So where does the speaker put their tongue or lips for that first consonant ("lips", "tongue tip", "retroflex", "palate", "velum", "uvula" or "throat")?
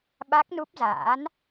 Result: lips